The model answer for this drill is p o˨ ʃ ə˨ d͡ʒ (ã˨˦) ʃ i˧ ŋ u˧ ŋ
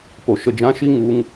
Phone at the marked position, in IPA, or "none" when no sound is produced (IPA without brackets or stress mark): ã˨˦